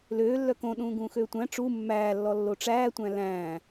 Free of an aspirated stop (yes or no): yes